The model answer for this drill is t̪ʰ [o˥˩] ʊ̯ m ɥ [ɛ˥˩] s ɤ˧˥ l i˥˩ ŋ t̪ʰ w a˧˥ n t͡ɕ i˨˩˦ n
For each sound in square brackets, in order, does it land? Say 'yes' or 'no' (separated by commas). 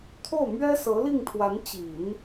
yes, no